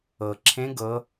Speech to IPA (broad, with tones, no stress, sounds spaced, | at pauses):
ɤ˩ ǁʰ ẽ˧˥ ɡ ɤ˩˧